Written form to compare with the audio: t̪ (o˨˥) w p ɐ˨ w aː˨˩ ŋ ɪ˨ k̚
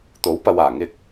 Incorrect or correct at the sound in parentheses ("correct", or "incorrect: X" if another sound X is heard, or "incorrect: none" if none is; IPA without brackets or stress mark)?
correct